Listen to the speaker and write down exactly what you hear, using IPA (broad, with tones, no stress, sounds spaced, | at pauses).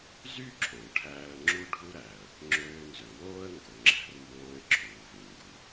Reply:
z y˥ ǁʰ õ˩ ʈʰ æː˥ ə̯ ŋ͡ǁ u˥ ɖʱ u˥ ɾ æ˩ ə̯ | ŋ͡ǁ øː˧ n z ø˩ w oː˥ ə̯ ŋ ɡ o˩ ŋ͡ǁ æ̤˧ r m b õː˧ ɪ̯ ǁʰ uː˩ v ĩ˩ ŋ ɡ u˩